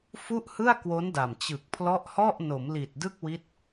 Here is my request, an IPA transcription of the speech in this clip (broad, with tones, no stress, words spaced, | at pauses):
fu˥˩ʔhɯ˥˩a̯ kwo˦˥nda˨˩m t͡ɕɯ˨˩k̚pʰlɔ˦˥ʔhɔ˥˩ʔ no˩˦mli˨˩t̚dɯ˥˩k̚wi˦˥t̚